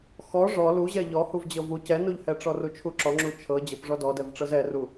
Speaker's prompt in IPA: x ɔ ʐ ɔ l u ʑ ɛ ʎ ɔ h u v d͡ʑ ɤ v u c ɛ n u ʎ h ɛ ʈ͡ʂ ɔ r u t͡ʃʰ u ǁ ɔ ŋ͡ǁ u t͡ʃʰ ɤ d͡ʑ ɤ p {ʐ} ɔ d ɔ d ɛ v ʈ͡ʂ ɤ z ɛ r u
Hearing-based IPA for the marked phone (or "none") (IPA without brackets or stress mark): ʐ